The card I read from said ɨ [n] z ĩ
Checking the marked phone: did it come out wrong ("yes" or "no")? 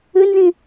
no